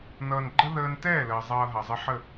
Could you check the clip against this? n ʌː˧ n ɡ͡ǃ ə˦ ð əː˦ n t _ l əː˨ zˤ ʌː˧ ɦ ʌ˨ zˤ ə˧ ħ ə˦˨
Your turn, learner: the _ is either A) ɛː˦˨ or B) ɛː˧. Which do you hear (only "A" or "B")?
A